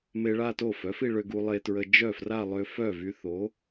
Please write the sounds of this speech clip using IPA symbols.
m e˧ ɭ a˥˧ t o˥˩ f œ˩˥ f i˥˧ ɭ ø˧ ɡ u˧ lˠ e˧ t ɹ ə˧ d͡ʒ œ˥˩ f r a˥˧ lˠ ø˧ f œ˥˩ v y˧ θ o˩˥

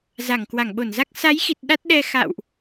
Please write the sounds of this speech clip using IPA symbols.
z a˧˩ ŋ k w a˧˩ ŋ ɓ o˧˩ n z a˦˥ k̚ s a˨˦ j x i˨˩ t̚ ɗ a˦˥ t̚ ɗ ɛ˧ x a̰ː˧˨ w ʔ

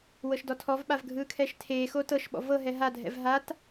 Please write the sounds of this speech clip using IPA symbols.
w ɤ ʃ d ɔ tʰ ɔ v ɓ a v ɡʱ ɯː kʰ ɛː ʃ tʰ eː x oː t ɤ ʃ ɓ ɔ̰ v ɤ ɦ ɛ ɦ a dʱ ɛ̰ v ɦ a t

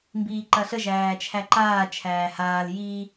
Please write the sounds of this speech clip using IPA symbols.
m b iː ǃ ɐ ɬ ə ʒ æː t͡ʃʰ æ ǃ aː t͡ʃʰ æː h aː l j i

